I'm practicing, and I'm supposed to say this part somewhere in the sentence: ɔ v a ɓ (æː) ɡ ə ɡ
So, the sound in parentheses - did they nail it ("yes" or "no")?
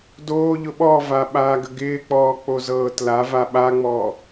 no